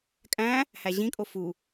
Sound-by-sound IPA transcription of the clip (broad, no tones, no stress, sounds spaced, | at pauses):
kʼ æ̃ | h æ ʑ ĩ kʼ o f u